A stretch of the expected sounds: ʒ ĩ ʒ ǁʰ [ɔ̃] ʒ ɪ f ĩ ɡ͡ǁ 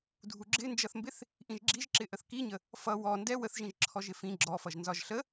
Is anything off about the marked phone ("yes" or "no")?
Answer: yes